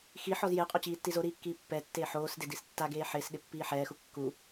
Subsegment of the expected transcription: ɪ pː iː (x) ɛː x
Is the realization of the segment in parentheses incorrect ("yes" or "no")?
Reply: yes